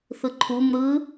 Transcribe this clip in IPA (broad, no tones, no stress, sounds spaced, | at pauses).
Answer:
θ ɯ ǃʰ u m ɾ ɯ